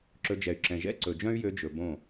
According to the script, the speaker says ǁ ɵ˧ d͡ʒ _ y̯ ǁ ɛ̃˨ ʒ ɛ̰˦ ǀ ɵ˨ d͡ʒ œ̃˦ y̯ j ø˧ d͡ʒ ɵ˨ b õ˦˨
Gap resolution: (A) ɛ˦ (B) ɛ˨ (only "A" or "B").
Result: B